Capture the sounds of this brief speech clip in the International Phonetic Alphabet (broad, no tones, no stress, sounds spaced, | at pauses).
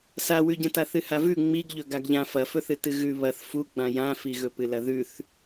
s a w ʉ ɟ ɐ̃ t a θ ɨ h a v ʉ ŋ͡m i ɡ ʎ ɵ ɡ a ɡ ʎ ã f ɐ f ɵ θ ɨ t ɨ ɣ ʉ β ɐ θ f u ɡ͡b ã j ã f i ɣ ɵ p ɨ l ɐ ð ʉ θ